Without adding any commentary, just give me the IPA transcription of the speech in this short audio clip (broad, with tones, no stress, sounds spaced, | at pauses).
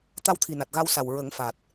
t̪ a˧ w t̪ʰ i˨˩ n a˨˩ t̚ ɣ a˧ w s a˨˩ w ɹ ə˨˩˦ ŋ f a˨˩ t̚